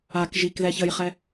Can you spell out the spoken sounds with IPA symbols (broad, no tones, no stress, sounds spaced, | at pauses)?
a k ʒ i k ð ɛ ç ə j χ ɛ